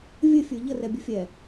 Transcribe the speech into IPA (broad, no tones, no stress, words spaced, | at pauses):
vʲɘfʲə˞ ʎərɛbʲə fʲɛ